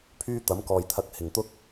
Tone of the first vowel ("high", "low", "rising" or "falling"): high